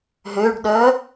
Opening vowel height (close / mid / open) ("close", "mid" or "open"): mid